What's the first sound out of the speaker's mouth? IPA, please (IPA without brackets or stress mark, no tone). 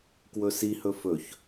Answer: k